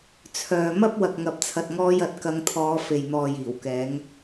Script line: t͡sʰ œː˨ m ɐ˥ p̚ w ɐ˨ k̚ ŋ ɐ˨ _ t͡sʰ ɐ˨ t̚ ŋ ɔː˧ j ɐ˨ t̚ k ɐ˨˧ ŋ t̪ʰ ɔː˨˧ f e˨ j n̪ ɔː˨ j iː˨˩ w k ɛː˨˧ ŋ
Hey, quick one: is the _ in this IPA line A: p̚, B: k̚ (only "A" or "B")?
A